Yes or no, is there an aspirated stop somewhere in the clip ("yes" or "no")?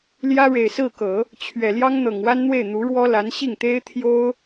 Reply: yes